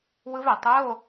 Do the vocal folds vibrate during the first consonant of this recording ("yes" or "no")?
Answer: yes